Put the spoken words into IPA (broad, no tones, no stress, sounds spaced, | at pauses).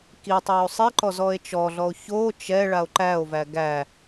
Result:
k i tˤ i o̯ sˤ i ǃ ɔ z ɔ e̯ t͡ʃ ɔ ɮ ɔ o̯ ç o t͡ʃ ɛ ɭ a o̯ ǃ æ o̯ v æ ɡ æ